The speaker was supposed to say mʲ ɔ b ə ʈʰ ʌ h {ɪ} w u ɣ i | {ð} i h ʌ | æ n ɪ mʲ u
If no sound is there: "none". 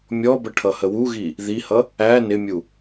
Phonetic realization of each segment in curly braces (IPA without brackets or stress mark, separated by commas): ə, ð